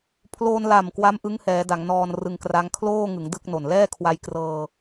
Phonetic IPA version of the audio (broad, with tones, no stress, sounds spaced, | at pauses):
pʰ l oː˧ n l a˨˩ m k w a˦˥ m ʔ ɯ˦˥ ŋ h ɛː˩˦ d a˩˦ ŋ n ɔː˧ n r ɯ˧ ŋ k r a˦˥ ŋ kʰ l oː˥˩ ŋ ɯ˩˦ ŋ d ɯ˥˩ k̚ n o˨˩ n l ɛː˥˩ kʰ w a˧ j k r ɤː˧